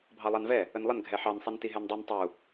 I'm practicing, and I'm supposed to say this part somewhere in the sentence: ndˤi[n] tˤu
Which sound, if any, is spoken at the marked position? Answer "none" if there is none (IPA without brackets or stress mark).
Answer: n